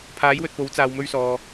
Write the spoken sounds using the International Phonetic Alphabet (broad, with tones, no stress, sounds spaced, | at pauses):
pʰ aː˨˥ j w ɵ˨ t̚ p o˨˥ w t͡s aː˧ w m ɵ˥ ɥ s ɔː˧